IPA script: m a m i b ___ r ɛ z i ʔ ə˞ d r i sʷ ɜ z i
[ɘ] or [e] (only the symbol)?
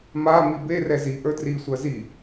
e